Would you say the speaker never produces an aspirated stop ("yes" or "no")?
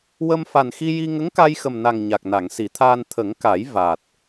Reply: no